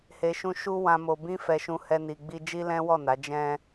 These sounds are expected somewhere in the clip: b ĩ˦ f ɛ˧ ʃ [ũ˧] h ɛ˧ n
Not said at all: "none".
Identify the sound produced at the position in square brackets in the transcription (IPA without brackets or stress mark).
ũ˧